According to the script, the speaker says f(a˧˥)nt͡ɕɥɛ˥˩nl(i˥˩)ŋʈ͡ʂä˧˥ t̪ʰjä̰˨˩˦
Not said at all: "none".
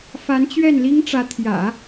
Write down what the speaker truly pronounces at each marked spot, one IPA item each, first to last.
a˧˥, i˥

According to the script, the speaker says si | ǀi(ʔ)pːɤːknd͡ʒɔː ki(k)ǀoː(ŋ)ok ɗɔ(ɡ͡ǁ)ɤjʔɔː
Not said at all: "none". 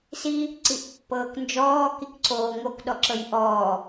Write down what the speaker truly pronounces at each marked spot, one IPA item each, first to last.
ʔ, k, ŋ, ǁ

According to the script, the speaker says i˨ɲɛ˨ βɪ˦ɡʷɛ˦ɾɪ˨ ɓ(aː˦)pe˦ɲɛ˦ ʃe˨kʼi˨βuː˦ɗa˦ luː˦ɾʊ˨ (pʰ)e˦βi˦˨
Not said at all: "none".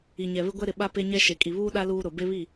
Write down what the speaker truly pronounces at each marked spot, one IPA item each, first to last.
a˦, b

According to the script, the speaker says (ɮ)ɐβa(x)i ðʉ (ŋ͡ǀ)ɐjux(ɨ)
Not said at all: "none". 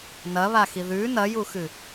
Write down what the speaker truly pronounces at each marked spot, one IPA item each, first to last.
n, x, n, ɨ

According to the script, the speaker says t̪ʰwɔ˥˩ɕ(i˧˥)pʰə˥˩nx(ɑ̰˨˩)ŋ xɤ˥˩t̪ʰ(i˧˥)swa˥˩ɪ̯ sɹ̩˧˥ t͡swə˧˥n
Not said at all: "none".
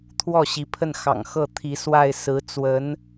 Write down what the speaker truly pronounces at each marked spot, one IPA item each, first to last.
i˧˥, ɑ̰˨˩, i˧˥

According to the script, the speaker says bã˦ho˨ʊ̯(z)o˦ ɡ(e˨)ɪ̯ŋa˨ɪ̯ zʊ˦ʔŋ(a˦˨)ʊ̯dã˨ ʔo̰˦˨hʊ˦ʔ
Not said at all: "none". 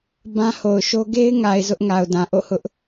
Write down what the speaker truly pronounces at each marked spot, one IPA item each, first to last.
ʃ, e˦, a˨

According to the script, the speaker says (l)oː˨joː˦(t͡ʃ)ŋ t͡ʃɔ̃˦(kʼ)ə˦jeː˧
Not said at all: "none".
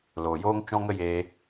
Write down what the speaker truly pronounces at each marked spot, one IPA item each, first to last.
l, none, ŋ

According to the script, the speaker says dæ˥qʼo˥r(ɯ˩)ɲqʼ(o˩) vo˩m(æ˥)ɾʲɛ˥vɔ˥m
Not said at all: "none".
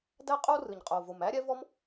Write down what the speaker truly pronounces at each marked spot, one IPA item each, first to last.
ɯ˩, o˩, æ˥

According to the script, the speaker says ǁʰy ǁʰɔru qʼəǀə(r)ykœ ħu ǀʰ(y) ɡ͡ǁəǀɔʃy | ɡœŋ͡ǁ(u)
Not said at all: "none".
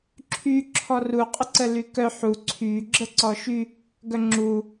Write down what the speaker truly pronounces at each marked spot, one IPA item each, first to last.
l, y, u

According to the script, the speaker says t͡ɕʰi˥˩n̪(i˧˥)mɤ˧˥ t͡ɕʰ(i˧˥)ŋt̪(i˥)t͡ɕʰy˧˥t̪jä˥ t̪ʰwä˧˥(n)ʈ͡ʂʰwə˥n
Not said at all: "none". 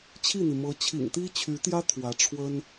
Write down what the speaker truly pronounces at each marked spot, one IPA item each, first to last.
i˩, ḭ˨˩, i˥, none

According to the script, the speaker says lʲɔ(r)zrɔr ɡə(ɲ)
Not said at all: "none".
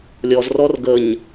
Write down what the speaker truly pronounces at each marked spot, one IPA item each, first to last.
none, ɲ

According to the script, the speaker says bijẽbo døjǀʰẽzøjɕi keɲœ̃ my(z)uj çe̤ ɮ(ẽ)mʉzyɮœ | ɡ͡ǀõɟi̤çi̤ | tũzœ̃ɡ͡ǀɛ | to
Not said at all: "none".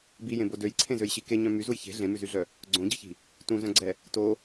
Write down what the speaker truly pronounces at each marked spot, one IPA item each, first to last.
z, ẽ

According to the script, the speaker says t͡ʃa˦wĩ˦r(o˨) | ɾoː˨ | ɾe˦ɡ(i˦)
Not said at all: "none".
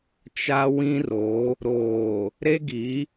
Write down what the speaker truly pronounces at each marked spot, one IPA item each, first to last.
o˨˦, i˨˦

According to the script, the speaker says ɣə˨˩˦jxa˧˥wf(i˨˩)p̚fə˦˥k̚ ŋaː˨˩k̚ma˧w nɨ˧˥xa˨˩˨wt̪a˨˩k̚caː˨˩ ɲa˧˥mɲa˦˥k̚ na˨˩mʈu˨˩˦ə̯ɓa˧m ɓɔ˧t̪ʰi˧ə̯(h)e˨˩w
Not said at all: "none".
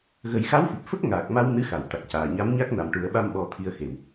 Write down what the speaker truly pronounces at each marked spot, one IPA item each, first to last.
i˨˩, x

